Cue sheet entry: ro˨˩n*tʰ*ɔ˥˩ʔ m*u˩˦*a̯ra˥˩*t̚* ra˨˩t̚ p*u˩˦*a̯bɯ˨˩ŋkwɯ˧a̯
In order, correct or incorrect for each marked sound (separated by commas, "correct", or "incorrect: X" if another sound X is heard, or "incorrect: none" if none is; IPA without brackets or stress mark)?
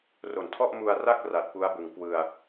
correct, incorrect: u˧, incorrect: k̚, incorrect: u˦˥